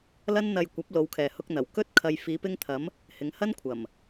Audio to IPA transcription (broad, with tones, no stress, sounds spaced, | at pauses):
l ɐ˥ n n̪ ɐ˧ j kʷ ɐ˨˥ p̚ l o˨˧ w kʰ ɛː˨ h ʊ˧ k̚ n̪ ɐ˨˩ w k ɵ˥ t̚ kʰ ɐ˧ j f iː˨˧ p ɪ˧ ŋ t̪ʰ ɐ˨˧ m | h ɪ˨˧ ŋ h ɐ˥ n kʷʰ ɐ˨˩ m